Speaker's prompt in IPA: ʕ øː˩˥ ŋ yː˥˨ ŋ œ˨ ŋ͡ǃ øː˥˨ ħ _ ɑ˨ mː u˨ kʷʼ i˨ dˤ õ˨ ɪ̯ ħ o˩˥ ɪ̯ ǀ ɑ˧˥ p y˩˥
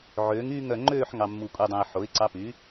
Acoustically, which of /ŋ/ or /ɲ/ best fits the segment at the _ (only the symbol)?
ŋ